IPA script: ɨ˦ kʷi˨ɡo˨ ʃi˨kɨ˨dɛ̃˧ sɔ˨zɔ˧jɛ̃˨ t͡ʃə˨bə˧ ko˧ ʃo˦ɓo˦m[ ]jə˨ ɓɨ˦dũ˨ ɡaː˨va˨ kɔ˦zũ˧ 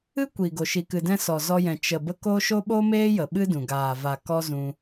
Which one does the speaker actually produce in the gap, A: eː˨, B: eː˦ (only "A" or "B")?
B